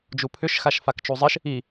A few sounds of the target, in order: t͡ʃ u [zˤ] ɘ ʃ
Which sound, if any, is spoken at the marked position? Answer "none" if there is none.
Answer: zˤ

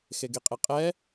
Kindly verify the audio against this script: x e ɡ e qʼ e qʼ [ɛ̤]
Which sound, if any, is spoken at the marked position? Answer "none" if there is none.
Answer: ɛ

